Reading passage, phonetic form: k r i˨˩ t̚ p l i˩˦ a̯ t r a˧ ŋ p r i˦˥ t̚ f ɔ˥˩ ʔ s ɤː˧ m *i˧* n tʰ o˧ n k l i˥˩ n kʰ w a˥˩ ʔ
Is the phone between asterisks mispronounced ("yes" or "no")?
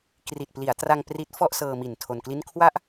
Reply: yes